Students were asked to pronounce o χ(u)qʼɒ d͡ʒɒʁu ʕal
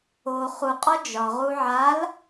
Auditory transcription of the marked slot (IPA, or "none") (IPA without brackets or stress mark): u